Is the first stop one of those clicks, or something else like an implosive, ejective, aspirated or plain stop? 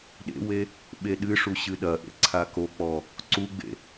implosive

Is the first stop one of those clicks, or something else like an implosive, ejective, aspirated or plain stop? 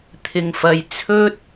aspirated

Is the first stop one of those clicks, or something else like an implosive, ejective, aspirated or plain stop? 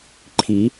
click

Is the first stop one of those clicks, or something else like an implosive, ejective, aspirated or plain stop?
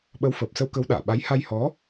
implosive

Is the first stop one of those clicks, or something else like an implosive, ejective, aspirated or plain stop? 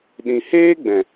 implosive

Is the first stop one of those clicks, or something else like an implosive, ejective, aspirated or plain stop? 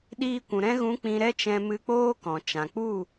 implosive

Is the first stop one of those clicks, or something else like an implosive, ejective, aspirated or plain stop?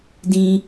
plain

